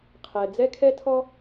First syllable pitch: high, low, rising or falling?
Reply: low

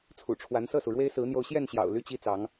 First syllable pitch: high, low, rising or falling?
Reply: low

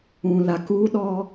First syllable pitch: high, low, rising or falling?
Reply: low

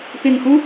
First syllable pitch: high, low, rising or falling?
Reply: low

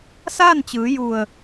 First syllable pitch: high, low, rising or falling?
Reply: falling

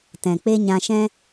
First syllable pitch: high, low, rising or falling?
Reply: low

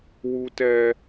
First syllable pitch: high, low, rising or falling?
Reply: high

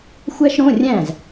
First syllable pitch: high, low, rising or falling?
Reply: high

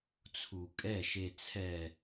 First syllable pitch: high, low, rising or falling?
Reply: low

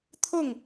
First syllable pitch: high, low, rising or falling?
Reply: falling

